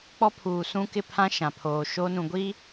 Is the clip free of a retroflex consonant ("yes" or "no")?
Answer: yes